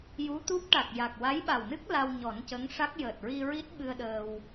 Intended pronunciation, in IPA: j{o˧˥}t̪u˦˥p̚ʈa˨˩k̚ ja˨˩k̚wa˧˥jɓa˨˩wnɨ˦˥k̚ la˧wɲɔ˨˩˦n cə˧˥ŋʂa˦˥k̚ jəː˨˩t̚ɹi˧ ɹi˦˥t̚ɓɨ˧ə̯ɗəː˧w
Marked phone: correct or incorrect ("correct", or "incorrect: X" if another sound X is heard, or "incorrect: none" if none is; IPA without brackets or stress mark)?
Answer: incorrect: u˧˥